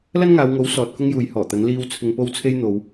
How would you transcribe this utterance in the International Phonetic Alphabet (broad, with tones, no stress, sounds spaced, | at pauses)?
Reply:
l ɐ˥ n ŋ aː˨˧ w ŋ o˨˥ w s ɔː˨ t̚ k ʊ˥ ŋ j uː˨˧ j h ɔː˨˩ t̪ ɐ˨˥ n l iː˥ w t͡sʰ ɪ˧ ŋ p o˥ w t͡sʰ e˥ j n̪ o˨˧ w